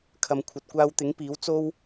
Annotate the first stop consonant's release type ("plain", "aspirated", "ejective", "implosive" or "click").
aspirated